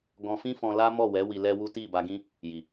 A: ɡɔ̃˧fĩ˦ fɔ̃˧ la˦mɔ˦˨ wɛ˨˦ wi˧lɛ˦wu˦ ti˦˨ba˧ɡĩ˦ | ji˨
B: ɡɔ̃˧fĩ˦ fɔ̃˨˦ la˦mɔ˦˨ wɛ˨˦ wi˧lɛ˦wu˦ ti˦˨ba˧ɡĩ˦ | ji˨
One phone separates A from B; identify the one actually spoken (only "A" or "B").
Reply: A